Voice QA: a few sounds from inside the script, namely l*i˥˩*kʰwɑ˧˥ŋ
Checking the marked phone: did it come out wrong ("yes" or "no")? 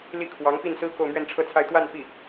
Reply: no